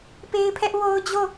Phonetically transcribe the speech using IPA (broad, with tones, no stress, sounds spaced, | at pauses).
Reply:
p e˦ ɪ̯ pʰ ɛ˦ ʔ w o˦ ʊ̯ d͡ʑ o˦˨